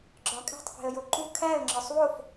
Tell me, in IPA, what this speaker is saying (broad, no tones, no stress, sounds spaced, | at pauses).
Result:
ɡ͡ǁ ɒ kʼ æ̤ tˤ f e̤ ə̯ j o ǃ u kʰ æ ə̯ ŋ͡ǁ ɒ sˤ w o f